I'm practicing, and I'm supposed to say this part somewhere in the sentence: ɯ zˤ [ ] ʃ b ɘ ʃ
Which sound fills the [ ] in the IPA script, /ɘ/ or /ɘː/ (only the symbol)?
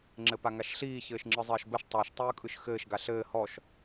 ɘː